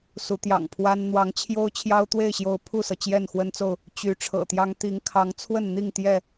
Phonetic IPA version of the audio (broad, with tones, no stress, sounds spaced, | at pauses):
s u˨˦ t̪ j ɑ̰˨˩ ŋ pʰ w a˦ n n̪ w ɑ˨˦ ŋ t͡ɕʰ j o˦ ʊ̯ t͡ɕʰ j ɑ˦ ʊ̯ t̪ w e˥˨ ɪ̯ ɕ j o˨˦ ʊ̯ pʰ u˥˨ s ɤ˩ t͡ɕ j ɛ˥˨ n x w ə˦ n t͡s o˥˨ ʊ̯ | t͡ɕ y˨˦ ʈ͡ʂʰ ɤ̰˨˩ t̪ j ɑ˦ ŋ t̪ i˨˦ ŋ kʰ ɑ˨˦ ŋ t͡sʰ w ə˥˨ n n̪ i˥˨ ŋ t̪ j ɛ˥˨